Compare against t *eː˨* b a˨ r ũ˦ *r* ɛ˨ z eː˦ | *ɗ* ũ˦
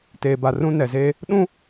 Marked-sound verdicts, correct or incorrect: correct, incorrect: n, correct

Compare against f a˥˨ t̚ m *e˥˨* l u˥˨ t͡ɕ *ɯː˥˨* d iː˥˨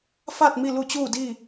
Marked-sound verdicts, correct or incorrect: incorrect: i˥˨, incorrect: uː˥˨

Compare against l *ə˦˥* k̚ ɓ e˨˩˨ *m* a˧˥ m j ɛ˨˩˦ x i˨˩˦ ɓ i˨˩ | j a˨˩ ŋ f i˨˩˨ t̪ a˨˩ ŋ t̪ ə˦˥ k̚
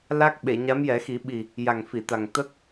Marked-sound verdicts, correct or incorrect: incorrect: a˦˥, incorrect: ɲ

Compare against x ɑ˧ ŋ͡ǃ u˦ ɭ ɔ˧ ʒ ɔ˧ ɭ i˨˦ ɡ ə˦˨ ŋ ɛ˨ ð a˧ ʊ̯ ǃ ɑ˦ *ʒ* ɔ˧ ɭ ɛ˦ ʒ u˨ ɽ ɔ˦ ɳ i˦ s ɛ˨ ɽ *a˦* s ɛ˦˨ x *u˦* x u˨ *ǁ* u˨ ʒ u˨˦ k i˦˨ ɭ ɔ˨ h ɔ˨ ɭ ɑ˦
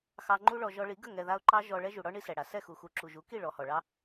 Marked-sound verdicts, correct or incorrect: correct, incorrect: a˨, incorrect: u˨, correct

